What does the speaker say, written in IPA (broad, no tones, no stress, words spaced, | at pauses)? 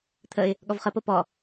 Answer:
t̪ʰəɪ̯ | ɠɔvχəpo pɔ